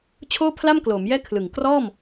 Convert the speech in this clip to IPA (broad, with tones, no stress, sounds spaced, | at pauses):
t͡ɕʰ oː˥˩ pʰ l a˥˩ m k l o˩˦ m j ɛː˥˩ kʰ l ɯ˨˩ ŋ k r ɔː˥˩ m